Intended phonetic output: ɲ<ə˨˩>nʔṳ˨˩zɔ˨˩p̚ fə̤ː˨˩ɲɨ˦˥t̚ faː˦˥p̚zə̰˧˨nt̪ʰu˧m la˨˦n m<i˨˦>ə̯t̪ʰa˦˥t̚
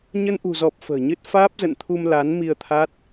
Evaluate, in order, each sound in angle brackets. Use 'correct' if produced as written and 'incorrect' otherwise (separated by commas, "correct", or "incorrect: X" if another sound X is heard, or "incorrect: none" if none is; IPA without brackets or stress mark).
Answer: incorrect: ə˧, incorrect: i˧